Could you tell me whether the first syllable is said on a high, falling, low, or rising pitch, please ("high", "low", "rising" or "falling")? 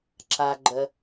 low